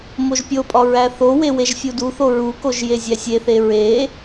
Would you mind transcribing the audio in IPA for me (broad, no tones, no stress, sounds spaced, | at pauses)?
m o ʒ pʲ o pʼ ɒ ɹ æ θ o w e w e ʒ fʲ u d u θ o ɹ u k o ʒ j e zʲ æ sʲ e θ e ɹ e